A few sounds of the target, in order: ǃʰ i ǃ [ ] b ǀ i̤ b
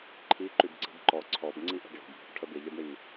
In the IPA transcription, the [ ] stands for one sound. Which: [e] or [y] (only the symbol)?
y